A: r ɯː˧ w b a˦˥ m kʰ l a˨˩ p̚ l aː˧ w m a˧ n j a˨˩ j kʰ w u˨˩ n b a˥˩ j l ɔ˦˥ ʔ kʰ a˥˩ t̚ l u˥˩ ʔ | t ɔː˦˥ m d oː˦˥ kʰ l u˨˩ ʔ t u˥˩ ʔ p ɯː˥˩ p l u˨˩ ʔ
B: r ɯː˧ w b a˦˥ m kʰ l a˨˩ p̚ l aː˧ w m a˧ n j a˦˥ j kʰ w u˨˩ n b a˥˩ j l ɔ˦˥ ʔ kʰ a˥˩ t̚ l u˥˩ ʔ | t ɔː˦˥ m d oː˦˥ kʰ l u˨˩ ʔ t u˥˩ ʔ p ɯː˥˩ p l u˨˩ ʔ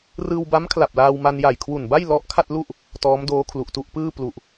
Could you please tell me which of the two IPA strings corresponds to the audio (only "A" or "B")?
A